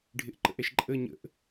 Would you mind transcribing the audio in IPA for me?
ɖʱ ɪ ʔ ǃ ə̰ ʔ ɛ ʃ ǃʼ ə ɲ ə̰ ʔ

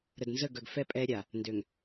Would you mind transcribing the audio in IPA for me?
ɾ ə˨ d n z ə˦˨ ɡ œ˨ ɡ f ɛ˦ pʼ ɛ˦ ɾʲ a˨ | n d ø˨ ŋ

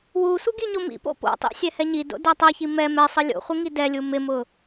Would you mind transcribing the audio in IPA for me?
w u sʷ ɪ ɡ i ɲ o m ḭ p o̰ p o̰ tˤ ḭ sʲ ɛ h ɛ ɲ i d o̰ d ɛ tˤ ɛ ç i m ɛ m ɛ sˤ i lʲ o̰ χʷ ɪ ŋ i d ɛ lʲ u m ɪ m ʊ

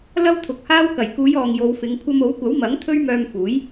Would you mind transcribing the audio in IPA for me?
l ɐ˥ w t̪ʰ ʊ˨ k̚ h aː˥ w k ɐ˨˩ j k uː˨˧ j ɔː˨ ŋ j o˨˧ w f ɪ˨˧ ŋ kʷʰ ɐ˧ m o˨˥ w kʷ ɐ˨˥ w m ɐ˨˥ ŋ t̪ʰ ɵ˥ ɥ m œː˧ m f uː˨˥ j

